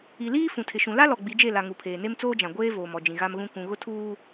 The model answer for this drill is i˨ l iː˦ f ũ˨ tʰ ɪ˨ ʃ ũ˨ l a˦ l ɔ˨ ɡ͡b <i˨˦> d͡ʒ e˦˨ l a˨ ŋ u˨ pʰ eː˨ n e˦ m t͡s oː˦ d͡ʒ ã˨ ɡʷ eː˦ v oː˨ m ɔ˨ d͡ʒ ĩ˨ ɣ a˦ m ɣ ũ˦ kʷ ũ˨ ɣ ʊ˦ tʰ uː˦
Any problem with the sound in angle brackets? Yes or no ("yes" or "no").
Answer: no